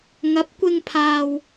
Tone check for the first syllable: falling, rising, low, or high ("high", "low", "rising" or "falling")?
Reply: rising